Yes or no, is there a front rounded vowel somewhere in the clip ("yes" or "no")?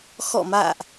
no